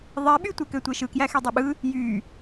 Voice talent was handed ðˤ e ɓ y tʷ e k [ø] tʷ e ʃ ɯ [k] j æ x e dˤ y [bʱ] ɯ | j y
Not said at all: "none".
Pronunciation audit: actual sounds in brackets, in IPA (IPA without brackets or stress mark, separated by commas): ø, k, ɓ